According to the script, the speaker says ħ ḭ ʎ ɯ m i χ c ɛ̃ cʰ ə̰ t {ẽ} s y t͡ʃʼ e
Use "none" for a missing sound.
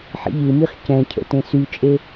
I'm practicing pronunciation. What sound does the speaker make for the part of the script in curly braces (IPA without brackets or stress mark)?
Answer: ẽ